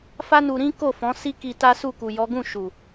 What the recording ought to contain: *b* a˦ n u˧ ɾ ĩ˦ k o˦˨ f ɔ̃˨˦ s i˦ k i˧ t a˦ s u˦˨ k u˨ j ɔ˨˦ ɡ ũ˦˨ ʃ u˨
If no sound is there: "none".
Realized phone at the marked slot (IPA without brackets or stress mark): f